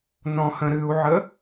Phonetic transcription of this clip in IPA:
n ɔ̃ h ə̃ ɾ ɨ u̯ ʕ ə

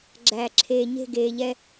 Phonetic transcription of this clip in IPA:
ɡ͡ǁ æː˨ ǁʰ eː˨ ɲ e̤˦˨ ɡ eː˨ ʎ ɛ˦

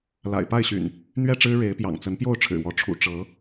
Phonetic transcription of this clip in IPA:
l a̰˨˩ ɪ̯ p a˥˨ ɪ̯ ɕ y̰˨˩ n | n̪ ɥ ɛ˥˨ ʈ͡ʂ ɻ̩˦ ɻ e˨˦ ɪ̯ p j ɑ̰˨˩ ŋ t͡s ə˨˦ n p j o˥˨ ʊ̯ ʈ͡ʂʰ ɻ̩˨˩ w ɔ˨˦ ʈ͡ʂʰ ṵ˨˩ ʈ͡ʂ ɤ˨˦

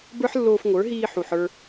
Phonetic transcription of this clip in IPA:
b ə˞˦ ħ lː oː˧ f ŋʷ ə˞˨˦ ɦ iː˧ ħ u˨ ħ ə˞˧

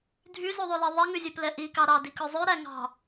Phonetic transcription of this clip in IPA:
dʱ y z ʉ ðˤ ʉ l i ðˤ ɛ ŋ ʉ zʲ ɛ p l ɛ ʔ i k ɑ ɾ ɑ d i k ɵ zˤ ʉ ɾ æ ŋ ɑ̤

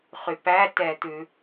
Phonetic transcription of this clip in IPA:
χ y p æ t ɛ t̪ ʉ

